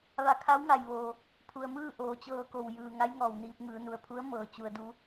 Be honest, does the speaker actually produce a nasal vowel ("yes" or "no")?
no